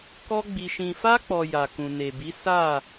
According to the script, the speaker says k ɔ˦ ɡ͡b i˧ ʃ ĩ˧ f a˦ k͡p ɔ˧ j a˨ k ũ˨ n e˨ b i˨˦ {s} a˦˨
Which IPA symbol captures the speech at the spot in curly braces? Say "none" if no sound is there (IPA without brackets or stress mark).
s